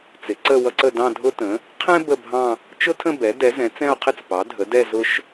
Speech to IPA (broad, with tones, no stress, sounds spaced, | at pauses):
t͡s ɪ˩˥ ǀ ə˥˧ w ʌ˥ ǀ ə˥˧ d ɑ̃˥˧ dʱ ʊ˥ t ə̃˩˥ | qʰ ɛ̃˥ b ə˥˧ bʱ ɑ̃˥˧ | t͡ʃ ʊ˥ tʰ ə̃˥˧ b ɛ˩˥ d ɛ˩˥ z ɛ̃˩˥ t͡s ɛ̃˥˧ o̯ qʰ ɪ˥˧ t͡s p ɑ˩˥ dʱ ə˩˥ d ɛ˥˧ z ʊ˥ ʃ